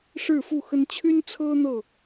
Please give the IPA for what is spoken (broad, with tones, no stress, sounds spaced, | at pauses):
ʂ ɻ̩˥˨ f u˥˨ x ə˦ n t͡ɕʰ y˦ n t͡sʰ ɤ˦ n̪ ɤ˥˨